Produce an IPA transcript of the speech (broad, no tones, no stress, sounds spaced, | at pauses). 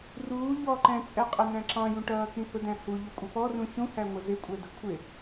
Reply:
r uː ʎ ɔ ǃ ɛ̃ t͡sʼ ɛ qʼ ə n æ̃ ǁ ɑ̃ j ũ ʈ ʌː k ĩ h ʊ d æ̃ h u ʎ ə kʷʼ ɪ p ɔ r ũ ç ũ h æ ŋʷ ə z ɪ kʷʼ ɛ d ə kʷʰ ɪ